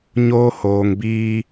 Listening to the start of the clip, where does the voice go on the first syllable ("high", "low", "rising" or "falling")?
high